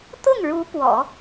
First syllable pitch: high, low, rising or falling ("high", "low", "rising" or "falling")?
falling